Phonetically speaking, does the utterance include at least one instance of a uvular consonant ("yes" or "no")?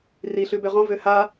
yes